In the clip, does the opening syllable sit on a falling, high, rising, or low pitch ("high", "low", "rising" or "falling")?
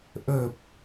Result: low